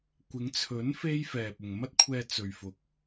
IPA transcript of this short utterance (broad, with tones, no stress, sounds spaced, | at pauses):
kʷ ɪ˨˧ ŋ t͡sʰ ɵ˨˥ n f e˥ j f ɛː˨ p̚ ʊ˨ ŋ m ɐ˥ t̚ kʷʰ ɛː˧ t͡s ɵ˨ ɥ f ʊ˨ k̚